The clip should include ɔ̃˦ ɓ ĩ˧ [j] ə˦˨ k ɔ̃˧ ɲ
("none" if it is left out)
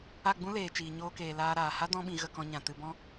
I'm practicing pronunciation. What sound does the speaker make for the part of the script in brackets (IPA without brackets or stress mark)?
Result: ɣ